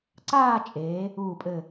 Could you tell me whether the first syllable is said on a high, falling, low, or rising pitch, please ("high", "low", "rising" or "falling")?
falling